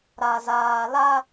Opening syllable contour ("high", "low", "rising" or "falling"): low